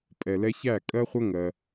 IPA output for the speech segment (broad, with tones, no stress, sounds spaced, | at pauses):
pʼ ɛ˨ l ɛ˧ ç æ˦˨ kʼ ɜ˦ χʷ ə˦ ŋ ɜ˧